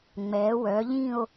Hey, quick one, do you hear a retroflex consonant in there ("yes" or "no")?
no